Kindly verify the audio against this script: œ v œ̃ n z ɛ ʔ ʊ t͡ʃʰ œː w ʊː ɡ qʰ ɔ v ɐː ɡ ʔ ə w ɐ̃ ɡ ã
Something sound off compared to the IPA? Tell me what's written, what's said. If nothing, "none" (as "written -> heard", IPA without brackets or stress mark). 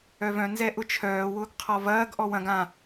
ə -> ɔ